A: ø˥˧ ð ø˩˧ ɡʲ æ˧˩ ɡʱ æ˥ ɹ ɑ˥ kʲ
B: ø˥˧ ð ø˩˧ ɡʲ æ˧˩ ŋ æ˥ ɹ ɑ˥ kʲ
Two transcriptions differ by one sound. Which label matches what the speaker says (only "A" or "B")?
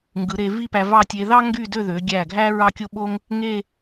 A